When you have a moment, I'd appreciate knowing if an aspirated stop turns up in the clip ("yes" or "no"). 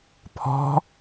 yes